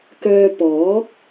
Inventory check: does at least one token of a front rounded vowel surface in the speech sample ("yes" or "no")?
yes